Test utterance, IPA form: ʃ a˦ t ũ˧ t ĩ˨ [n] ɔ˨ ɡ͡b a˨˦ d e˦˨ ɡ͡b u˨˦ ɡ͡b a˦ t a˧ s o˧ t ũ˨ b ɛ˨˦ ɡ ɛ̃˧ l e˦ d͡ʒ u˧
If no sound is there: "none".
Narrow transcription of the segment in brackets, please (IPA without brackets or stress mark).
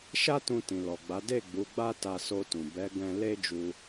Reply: l